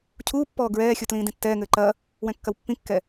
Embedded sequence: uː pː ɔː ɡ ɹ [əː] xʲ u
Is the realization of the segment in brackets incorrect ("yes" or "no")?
yes